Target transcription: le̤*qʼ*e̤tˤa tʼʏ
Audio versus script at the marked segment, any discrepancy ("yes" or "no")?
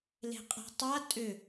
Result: no